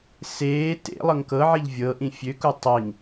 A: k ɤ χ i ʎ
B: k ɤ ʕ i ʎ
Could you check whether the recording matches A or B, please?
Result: B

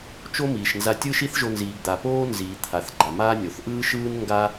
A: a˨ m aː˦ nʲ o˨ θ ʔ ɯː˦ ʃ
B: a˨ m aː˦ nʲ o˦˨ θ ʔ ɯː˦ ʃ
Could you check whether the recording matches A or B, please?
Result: A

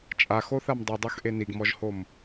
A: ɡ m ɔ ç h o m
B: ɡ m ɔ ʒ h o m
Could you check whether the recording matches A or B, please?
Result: B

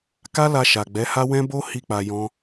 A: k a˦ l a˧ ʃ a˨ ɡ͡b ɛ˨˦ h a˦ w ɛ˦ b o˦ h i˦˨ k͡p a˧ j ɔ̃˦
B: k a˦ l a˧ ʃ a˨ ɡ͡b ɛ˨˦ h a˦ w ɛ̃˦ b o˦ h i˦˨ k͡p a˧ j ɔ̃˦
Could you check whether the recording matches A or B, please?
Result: B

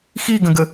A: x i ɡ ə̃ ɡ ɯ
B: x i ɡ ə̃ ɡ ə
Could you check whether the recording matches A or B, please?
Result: B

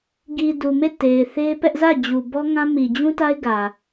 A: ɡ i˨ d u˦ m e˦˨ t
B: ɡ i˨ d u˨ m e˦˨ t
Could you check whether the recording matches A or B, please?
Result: B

